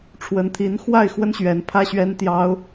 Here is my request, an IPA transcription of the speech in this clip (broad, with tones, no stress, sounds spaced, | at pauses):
ʈ͡ʂʰ w ə˧˥ n t̪ʰ i˧˥ n x w a˥˩ ɪ̯ x w ə˥ n ɕ ɥ ɛ˧˥ n pʰ ä˥ ɕ ɥ ɛ˥ n t̪ j ɑ˥ ʊ̯